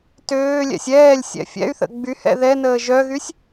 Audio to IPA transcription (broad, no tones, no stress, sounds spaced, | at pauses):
t øː lʲ ɛ̰ sʲ ɛː lʲ sʲ ɛ̰ fʲ ɛ̰ y̯ θ ə̰ ɡ͡b y h ɛ̰ ð ɛ n əː ʒ œ ɣ y sʲ